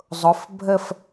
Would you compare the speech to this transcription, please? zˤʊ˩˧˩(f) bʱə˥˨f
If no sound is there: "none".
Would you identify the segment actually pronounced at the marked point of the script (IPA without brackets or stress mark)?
f